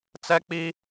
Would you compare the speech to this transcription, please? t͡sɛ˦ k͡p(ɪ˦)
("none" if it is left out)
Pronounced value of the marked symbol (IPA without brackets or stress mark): i˦